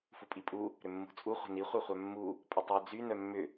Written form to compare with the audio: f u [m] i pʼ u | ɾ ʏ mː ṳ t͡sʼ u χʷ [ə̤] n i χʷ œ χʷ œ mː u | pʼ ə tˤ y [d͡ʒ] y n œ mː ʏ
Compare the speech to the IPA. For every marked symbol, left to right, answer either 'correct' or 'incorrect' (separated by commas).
incorrect, correct, incorrect